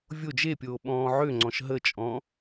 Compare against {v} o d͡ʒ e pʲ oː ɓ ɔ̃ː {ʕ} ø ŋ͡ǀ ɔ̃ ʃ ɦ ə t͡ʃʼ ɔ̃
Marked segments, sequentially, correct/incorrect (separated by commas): incorrect, correct